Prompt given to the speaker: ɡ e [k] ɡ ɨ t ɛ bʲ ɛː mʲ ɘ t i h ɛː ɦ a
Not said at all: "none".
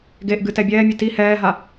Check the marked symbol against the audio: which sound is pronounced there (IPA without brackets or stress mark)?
ʔ